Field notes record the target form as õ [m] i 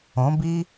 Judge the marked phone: incorrect: b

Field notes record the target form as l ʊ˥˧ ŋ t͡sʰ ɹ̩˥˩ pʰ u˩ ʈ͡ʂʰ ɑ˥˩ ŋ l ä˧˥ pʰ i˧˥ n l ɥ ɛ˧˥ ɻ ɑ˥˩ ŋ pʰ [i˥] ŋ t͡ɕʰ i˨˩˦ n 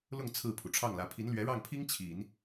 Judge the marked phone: correct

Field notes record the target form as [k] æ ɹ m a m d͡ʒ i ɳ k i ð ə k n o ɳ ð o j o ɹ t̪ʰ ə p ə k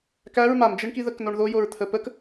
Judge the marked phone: correct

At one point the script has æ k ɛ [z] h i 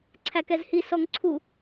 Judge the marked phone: correct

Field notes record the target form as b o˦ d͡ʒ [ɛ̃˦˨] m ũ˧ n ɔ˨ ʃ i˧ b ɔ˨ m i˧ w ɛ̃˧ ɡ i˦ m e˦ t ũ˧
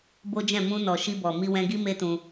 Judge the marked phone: correct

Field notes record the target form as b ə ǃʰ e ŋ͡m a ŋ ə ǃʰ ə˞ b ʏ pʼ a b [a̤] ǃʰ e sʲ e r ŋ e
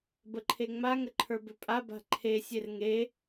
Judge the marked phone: correct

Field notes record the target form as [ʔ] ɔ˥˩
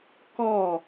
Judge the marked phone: incorrect: k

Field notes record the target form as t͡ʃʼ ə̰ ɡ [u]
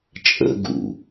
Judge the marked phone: incorrect: ṵ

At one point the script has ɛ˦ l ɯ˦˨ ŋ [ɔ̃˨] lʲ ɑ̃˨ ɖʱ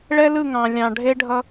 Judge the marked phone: incorrect: ɑ̃˨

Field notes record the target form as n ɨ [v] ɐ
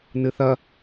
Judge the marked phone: incorrect: θ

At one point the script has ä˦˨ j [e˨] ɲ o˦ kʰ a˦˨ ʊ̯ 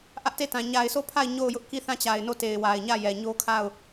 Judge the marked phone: incorrect: ɛ˨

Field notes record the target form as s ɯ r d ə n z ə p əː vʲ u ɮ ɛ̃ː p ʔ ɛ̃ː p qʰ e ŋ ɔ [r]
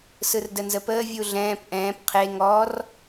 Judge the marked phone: correct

